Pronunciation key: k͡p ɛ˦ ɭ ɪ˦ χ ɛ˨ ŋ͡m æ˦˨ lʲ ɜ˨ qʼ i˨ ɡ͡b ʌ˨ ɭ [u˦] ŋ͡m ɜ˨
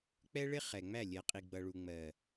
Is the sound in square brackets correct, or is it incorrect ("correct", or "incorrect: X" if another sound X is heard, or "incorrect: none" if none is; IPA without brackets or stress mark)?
incorrect: u˨